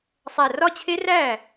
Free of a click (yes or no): yes